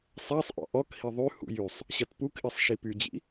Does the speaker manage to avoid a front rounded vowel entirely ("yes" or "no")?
no